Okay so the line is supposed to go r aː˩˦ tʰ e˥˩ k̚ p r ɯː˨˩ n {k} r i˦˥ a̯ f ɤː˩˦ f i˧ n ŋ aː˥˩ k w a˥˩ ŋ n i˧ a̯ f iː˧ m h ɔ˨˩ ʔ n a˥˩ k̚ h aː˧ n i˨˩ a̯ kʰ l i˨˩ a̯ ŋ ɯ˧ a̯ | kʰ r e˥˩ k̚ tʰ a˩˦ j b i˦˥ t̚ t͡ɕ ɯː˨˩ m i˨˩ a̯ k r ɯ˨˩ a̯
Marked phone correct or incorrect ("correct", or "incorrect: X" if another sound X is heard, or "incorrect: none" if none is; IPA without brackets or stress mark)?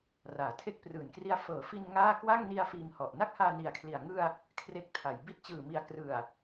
correct